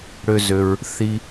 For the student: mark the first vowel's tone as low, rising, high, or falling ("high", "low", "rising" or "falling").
high